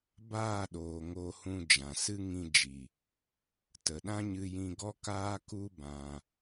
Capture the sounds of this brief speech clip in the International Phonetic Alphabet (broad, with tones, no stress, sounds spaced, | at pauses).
b aː˦˨ ɗ oː˨ ŋ oː˧ h ũ˧ d͡ʒ ã˨ s ɨ˦ ŋ ĩ˧ d͡ʒ i˨ | t ə˨ ɗ ã˦ ɲ ɨ˧ j ĩ˧ ɡ ɔ˦ k aː˦ k u˦ b ã˧